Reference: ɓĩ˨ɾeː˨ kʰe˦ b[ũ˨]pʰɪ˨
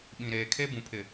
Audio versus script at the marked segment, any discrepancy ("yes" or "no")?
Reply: no